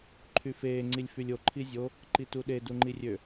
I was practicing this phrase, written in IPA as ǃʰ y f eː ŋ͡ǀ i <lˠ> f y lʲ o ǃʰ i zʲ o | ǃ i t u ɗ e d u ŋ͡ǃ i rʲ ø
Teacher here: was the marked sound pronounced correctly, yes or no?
no